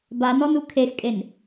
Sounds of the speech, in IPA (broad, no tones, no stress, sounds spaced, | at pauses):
b a n ɔ n u kʰ e x kʼ e n